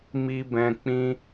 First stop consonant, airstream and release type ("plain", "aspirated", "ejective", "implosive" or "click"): plain